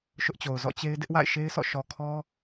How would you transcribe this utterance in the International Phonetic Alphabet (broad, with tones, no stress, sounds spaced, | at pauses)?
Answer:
ʃ ʊ˦ ʔ t͡ɕ o˨ ʊ̯ z ɔ̰˦˨ t͡ɕ e˦ ɪ̯ d ɪ˦ ʔ w a̰˦˨ ɪ̯ ʃ e˦ ɪ̯ sʰ ɔ̰˦˨ ʃ ɔ˨ kʰ ɔ˦